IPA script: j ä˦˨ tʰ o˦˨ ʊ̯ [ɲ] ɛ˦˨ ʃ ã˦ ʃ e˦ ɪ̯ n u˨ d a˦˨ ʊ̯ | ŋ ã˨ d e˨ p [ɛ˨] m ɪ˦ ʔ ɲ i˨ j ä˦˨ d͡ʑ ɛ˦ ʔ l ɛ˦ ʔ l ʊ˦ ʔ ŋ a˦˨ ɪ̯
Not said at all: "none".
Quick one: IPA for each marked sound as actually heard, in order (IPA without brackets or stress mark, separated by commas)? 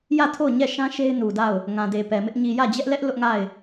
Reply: ɲ, ɛ˨